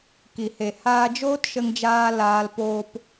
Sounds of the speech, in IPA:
ki˨he˨ haː˧d͡ʒoː˦tʃə˧ŋd͡ʒaː˧ laː˧lpoː˧p

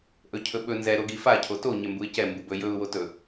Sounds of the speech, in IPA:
ʔɵcʰɵɓɵ nzɛ ɾoɡifa cʰoto ɲɛmbuɪ̯cɛ mbubɵ jɵʊ̯ wotɵ

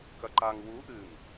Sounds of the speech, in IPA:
kɐǃaŋ wu ʔɨŋ

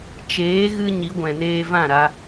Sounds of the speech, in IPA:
t͡ʃeː˨˦ ɣɨ˦ ɲi˨˦ɡʷɛ̃˨neː˧vã˦˨ ɾa˧

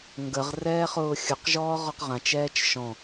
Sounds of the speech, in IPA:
ŋɡəʁrɛːχʊː xʲʊqʒɔːʁɔq ʁãt͡ʃɛːt͡ʃ ʃɔ̃

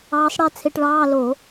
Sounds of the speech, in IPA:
ɑː˧˥sˤɽɛ˥˧ t͡sʰe˧ʈɭɑː˧˥˧ lo˧˩˧

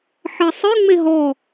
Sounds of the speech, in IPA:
ħɘsˤɨ ŋ͡meɦɔ

